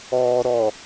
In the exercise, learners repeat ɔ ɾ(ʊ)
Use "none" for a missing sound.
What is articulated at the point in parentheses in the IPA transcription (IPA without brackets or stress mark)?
ɔ